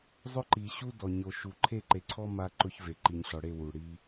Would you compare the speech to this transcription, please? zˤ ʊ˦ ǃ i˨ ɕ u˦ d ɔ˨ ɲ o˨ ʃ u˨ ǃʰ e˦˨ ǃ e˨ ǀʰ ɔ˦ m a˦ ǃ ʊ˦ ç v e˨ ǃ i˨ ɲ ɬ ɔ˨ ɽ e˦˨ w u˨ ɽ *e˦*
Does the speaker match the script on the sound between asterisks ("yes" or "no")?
no